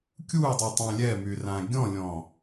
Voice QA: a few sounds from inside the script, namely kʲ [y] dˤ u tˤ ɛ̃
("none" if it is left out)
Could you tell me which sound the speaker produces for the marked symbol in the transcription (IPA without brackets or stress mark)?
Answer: u